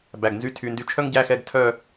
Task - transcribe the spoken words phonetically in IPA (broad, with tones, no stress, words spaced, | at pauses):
bæ˨˩ɡ nzy˧˥tʰy˨˩ndy˧ t͡ʃʰœ˥ŋɟæ˧˥˧xɛ˧˥˧ɡ tʰœ˥˧